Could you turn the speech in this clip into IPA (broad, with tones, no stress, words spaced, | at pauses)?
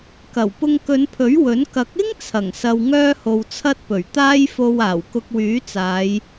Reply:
kɐ˨˩w pʊ˧ŋkɵ˨˧npʰɵ˨˥ɥ wɵ˨˥n kɐ˨˥k̚ɪ˥ŋ t͡sʰɐ˨˩ŋ sɐ˨w ŋœː˥ho˨wt͡sʰɐ˥t̚pɵ˨˩ɥ t̪aː˧jfo˨w aː˨˩wkʊ˧k̚wyː˨˥t͡saː˨˧j